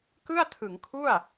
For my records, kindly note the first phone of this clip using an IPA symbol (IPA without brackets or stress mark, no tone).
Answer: k